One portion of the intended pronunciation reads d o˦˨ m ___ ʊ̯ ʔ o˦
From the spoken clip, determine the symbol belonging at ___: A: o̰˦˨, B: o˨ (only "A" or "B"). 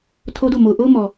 B